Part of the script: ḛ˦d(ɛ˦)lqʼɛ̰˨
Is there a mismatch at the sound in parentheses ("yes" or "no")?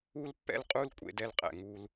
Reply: no